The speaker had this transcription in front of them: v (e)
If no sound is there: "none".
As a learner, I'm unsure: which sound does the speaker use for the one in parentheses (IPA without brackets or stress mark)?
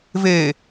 e